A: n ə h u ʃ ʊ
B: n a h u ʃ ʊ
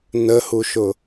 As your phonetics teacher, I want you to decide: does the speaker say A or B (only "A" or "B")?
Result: A